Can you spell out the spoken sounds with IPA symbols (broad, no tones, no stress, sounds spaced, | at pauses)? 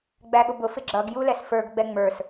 ɡ͡b æ ɠ ʊ b ʊ f ɪ ɡ͡ǁ ʌ ɡ j u l ɛ s f ə˞ ɡ ɡ͡b ɛ ŋ͡m ə˞ s